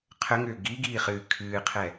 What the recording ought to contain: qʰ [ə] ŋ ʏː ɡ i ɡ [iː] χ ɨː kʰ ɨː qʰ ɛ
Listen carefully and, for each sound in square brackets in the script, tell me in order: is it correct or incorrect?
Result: correct, correct

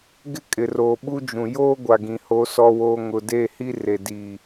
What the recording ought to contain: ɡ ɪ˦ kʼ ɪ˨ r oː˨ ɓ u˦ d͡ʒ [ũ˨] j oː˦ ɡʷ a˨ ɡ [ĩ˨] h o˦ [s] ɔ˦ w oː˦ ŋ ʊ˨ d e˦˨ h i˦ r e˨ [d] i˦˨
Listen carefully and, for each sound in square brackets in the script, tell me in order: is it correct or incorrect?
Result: correct, correct, correct, correct

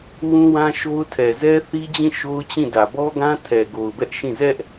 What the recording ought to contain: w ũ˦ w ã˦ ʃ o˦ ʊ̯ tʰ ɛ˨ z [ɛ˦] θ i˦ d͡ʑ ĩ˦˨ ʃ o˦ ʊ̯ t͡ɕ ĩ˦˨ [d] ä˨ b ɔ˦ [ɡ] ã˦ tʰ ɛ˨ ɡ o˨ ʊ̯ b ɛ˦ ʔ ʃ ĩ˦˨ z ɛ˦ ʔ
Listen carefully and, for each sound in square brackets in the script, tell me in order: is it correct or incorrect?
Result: correct, correct, correct

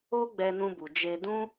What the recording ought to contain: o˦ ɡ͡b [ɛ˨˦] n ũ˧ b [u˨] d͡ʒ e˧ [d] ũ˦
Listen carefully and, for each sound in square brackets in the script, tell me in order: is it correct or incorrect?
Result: incorrect: ɛ˧, correct, correct

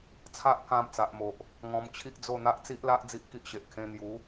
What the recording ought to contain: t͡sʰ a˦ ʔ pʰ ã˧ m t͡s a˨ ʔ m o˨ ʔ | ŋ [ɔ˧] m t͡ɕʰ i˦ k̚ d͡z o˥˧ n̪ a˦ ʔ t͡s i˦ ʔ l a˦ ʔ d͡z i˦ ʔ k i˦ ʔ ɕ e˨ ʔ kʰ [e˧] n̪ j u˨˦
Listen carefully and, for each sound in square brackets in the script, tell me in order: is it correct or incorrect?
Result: incorrect: ɔ̃˧, incorrect: ẽ˧

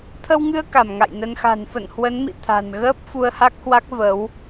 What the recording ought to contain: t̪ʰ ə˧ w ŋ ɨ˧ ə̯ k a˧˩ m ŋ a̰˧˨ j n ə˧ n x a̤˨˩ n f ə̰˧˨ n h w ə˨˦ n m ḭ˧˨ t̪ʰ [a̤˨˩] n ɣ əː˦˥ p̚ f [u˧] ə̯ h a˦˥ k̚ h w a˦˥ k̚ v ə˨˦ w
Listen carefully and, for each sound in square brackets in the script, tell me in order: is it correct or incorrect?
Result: correct, correct

